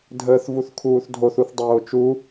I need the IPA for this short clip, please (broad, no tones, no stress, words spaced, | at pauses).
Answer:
dʱəːθvuθkʰuːθdʱoθ uθdˤoːt͡ʃu